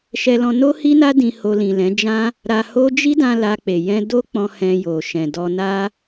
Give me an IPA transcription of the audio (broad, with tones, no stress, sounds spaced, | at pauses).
ʃ ɛ˧ l ɔ̃˧ n o˦ h i˦ n a˦ d ĩ˧ h o˧ l ĩ˨ l ɛ̃˨˦ d͡ʒ ã˦ | ɾ a˧ h o˦ d͡ʒ i˦ d ã˧ l a˧ k͡p e˨ j ɛ̃˧ d o˦ k͡p ɔ̃˧ h ɛ̃˧ j o˨ ʃ ɛ̃˨ d ɔ˧ n a˦